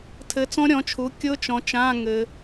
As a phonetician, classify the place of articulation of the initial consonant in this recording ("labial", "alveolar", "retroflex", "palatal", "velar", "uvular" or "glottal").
alveolar